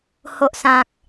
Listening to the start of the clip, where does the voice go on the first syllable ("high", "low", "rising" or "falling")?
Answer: low